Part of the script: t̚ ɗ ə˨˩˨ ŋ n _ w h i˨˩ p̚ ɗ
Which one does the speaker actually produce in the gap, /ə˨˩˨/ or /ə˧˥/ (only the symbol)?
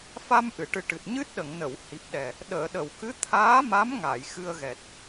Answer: ə˨˩˨